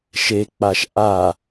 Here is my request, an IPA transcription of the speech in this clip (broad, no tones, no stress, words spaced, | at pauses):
ʃek͡paʃ ʔa